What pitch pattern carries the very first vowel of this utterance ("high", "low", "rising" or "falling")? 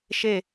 falling